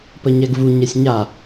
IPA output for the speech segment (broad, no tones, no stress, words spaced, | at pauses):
pəɲɛɡvu ɲɛsʲɲa